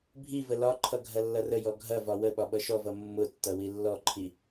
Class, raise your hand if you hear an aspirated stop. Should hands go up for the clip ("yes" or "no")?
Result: yes